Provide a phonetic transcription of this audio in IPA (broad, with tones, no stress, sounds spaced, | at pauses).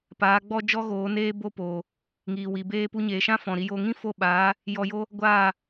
p aː˨˦ ɡ͡b ɔ˦ d͡ʒ ɔ˦ ɣ oː˨˦ n eː˦ b o˦ p oː˨ | ŋ iː˨ w iː˨ b eː˧ p u˧ ɲ eː˨ ʃ ã˦ f ɔ̃˨ ɾ i˧ j o˧ ŋ ĩ˦ f o˧ ɓ aː˨˦ | j ɔ˧ j o˦ | ɡʷ aː˦˨